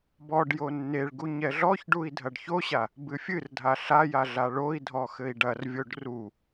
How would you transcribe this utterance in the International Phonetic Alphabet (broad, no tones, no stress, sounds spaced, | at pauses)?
b ɔ ɖ j o nː e ɭ ɡ u ɲ ɛ ɮ ɔ ç ɖ u i̯ dʱ ɐ ɖ ç o ɕ a | b ɨ fʲ ɨ r dʱ a ɬ a j a ɮ a ɭ o i̯ dʱ ɔ x ɘ i̯ ɖ ɐ r vʲ o ɖ r u